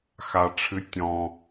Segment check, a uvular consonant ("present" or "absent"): absent